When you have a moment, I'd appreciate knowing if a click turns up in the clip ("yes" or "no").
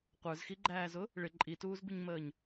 yes